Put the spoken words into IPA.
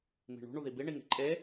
m i̤ ɳ ṳ ɳ u ð i b i ɳ i ŋ e̤ ǃʼ e

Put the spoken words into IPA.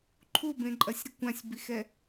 ǃʰ u b ẽ ǃʼ ɐ sʲ ɾ ɨ kʷ ã sʲ b i x ɛ

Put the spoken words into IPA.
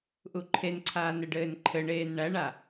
ʔ u ǃʰ e n ǀʰ aː n ɘ ɖ ɘː n ǃʰ ɘ ɳ eː n ɳ æ ɳ a

